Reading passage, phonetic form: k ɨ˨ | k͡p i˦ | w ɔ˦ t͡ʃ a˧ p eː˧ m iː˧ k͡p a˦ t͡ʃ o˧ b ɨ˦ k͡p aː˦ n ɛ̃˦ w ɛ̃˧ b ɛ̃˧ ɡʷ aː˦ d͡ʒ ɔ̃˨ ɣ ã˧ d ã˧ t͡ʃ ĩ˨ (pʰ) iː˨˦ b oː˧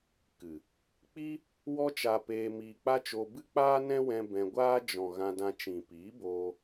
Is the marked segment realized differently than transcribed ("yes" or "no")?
yes